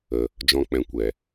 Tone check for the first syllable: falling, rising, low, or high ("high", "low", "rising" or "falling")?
low